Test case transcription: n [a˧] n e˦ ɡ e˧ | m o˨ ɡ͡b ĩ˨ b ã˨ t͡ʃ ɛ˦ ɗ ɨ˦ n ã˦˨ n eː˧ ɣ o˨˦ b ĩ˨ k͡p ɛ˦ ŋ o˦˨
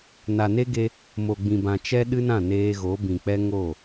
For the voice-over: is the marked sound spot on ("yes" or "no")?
no